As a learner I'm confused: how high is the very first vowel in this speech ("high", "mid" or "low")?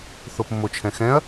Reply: mid